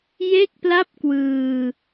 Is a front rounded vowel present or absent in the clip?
absent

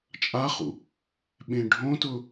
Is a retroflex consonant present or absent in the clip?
present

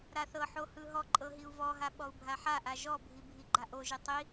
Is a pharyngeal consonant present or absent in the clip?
present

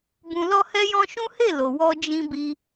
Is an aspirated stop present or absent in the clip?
absent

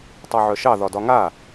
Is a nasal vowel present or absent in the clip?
absent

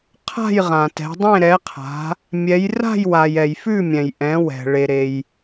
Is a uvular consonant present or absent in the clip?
present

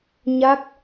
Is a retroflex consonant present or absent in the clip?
absent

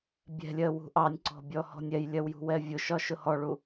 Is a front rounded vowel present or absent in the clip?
absent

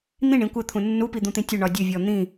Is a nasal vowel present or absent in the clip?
present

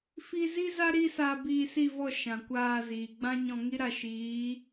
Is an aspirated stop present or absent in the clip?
absent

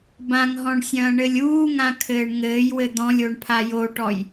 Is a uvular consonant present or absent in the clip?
absent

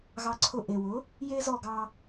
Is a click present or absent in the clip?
present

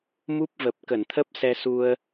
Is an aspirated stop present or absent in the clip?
present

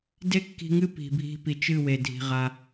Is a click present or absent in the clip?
absent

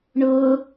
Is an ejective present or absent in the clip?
absent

